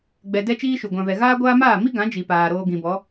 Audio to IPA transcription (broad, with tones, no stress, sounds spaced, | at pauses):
ɡ͡b ɛ˧ d ɛ˦ t͡ʃ iː˦ ʃ u˨ ɡʷ ã˨ v ɛ˨ ɣ aː˦ ɡʷ aː˦ m aː˦˨ m i˦ ɡ ã˨˦ d͡ʒ i˨ p aː˨ ɾ oː˧ ɡ ĩ˨ b ɔ˨˦